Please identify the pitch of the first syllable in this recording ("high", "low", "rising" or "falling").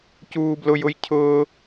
high